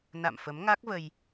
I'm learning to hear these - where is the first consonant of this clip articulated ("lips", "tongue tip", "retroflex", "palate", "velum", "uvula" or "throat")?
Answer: tongue tip